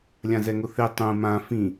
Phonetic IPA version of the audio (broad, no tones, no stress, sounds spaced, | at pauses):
lʲ ã z ɛ ŋ ʊ θ e tˤ ũ m ã f ĩ